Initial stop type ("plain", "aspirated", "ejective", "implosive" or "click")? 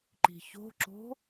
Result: click